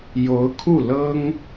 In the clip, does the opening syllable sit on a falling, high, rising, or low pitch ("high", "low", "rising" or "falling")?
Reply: rising